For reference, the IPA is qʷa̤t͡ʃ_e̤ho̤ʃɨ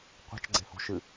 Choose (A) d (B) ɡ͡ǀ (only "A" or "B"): B